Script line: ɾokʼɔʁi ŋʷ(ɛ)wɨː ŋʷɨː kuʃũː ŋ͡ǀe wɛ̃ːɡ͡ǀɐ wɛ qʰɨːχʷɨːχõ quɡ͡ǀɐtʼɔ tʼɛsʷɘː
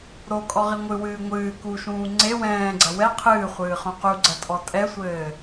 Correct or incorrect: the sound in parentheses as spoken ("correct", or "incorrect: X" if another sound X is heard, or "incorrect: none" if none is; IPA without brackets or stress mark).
incorrect: ɨ